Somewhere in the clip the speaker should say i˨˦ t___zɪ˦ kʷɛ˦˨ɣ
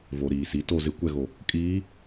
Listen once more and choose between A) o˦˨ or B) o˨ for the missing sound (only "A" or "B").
A